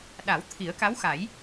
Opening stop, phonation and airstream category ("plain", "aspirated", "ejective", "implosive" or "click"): implosive